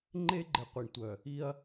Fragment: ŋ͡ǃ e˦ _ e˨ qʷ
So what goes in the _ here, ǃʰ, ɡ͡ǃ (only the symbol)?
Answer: ɡ͡ǃ